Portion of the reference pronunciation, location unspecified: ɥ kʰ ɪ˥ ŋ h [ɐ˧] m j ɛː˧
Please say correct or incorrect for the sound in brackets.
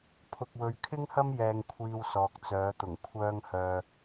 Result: incorrect: ɐ˥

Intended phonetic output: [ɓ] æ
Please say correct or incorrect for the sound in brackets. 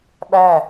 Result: correct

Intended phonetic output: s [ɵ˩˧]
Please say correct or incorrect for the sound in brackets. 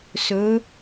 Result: correct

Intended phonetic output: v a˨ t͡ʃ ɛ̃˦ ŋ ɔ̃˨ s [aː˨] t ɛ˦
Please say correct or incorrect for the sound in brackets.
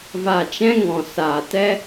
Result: correct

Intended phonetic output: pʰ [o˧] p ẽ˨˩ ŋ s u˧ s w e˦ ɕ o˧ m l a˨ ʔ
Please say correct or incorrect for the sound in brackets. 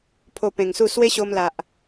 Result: correct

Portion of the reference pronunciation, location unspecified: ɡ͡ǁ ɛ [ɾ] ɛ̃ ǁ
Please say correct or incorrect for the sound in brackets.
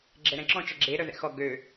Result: correct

